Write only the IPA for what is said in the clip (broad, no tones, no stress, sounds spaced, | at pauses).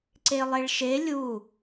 ǀ e lˠ e ɭ ʃ e lʲ u